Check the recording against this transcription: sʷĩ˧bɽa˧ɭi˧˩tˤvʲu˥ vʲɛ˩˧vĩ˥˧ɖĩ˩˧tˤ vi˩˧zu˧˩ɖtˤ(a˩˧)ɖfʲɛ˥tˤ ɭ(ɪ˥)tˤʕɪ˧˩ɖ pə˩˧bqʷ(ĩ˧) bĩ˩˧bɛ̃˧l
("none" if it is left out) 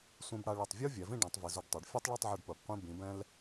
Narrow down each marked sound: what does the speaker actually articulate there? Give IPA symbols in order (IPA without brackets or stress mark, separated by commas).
a˩˧, ɪ˥˧, ĩ˧